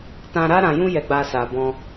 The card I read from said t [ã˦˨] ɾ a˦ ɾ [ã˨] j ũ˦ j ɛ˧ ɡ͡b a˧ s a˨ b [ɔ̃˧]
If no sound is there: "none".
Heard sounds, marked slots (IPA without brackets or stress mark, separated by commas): ã˧, ã˧, ɔ̃˧